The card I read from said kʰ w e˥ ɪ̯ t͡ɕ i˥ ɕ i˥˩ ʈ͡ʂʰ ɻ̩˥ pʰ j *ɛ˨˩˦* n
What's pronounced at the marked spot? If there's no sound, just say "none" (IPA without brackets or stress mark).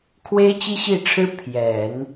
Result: ɛ˨˩˦